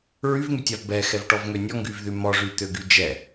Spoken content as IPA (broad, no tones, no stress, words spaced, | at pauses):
ɹyvŋytʲav bɛxɛvʈɔvŋø nʲɔŋɡyvðy mɔʐyt̪øɡy d͡ʒɛ